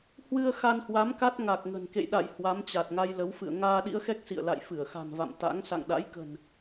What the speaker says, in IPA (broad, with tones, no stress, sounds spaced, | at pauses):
h w ɨ˧ ə̯ x a˧ n h w a˨˦ m k a˦˥ t̚ ŋ a˨˩ k̚ ŋ ə̤˨˩ n k ḛ˧˨ j ɗ a̰˧˨ j h w a˨˦ m t͡ɕ a˨˩ t̚ ŋ a˧ j l ə˨˦ w f ɨ̰˧˨ ə̯ ŋ aː˧ ɗ ḭ˧˥ ə̯ x ɛ˦˥ k̚ s ḭ˧˨ ə̯ l a̰˧˨ j f ɨ˧˩ ə̯ x a̤˨˩ n v a̰˧˨ m t̪ a̰˧˥ ŋ s a̰˧˨ ŋ ɗ a̰˧˥ j k ə̤˨˩ n